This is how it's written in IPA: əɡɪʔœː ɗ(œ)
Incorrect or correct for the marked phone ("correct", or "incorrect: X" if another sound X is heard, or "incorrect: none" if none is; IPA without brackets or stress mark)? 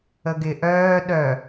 correct